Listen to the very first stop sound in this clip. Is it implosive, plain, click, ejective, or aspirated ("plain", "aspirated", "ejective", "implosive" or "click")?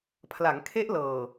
aspirated